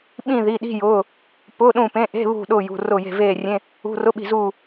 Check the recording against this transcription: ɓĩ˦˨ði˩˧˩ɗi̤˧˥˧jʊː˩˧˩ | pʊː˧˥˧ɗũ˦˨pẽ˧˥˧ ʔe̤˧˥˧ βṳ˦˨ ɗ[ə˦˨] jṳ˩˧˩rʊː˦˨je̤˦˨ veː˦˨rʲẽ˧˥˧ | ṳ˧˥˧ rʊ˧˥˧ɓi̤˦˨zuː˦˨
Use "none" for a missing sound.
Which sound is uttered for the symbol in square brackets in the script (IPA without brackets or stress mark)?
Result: ʊ˦˨